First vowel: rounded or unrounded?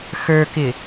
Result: unrounded